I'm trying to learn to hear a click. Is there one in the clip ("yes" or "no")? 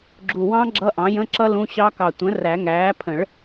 yes